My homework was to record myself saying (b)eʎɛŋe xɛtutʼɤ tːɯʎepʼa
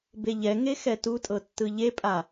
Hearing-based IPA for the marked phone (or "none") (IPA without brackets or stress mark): b